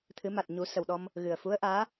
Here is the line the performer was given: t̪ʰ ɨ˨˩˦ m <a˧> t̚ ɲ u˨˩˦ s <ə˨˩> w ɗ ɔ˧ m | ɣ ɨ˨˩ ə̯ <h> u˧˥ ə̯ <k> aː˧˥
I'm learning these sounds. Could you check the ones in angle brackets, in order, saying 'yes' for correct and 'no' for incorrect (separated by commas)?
no, yes, no, no